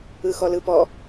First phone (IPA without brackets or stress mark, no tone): ɯ